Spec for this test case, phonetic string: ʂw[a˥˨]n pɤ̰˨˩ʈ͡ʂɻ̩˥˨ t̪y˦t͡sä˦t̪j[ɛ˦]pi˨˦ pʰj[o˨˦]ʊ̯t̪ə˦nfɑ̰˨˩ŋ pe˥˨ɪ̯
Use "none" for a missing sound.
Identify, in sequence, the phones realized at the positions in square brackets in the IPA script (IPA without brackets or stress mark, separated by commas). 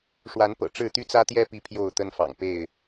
a˨˦, ɛ˦, o˥˨